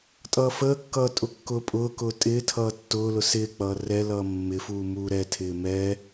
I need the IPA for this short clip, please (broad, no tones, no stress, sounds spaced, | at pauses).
tʼ ʌː f əː kː ʌː tʼ ʊ kː ʊː pʼ ʊː k ʊː tʼ ɪː tʰ ʌː tː ʊː l ʊ s ɪː k͡p ʌː r ɛ l ʌː mː ɪ f uː m uː ɾ ɛ tʰ ɪː m ɛː